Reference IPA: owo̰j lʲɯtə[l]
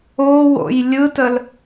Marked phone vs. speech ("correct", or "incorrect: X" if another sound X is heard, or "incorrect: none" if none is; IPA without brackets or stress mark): correct